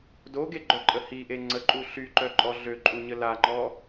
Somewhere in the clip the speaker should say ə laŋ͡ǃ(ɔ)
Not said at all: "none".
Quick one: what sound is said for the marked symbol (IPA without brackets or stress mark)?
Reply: ɔ